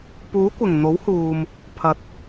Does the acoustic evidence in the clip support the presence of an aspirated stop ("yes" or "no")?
yes